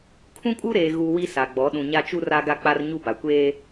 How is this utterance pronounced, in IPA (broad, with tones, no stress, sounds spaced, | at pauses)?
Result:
kʰ ũ˦ kʼ u˦ ɾ eː˨ ɣ u˨ w i˦ s a˨ ɡ͡b ɔ˨˦ ɗ ũ˨ ɲ a˦ t͡ʃ u˦ r a˦ ɡ a˦ k͡p a˦ r ɲ u˦ b a˨ kʷ eː˦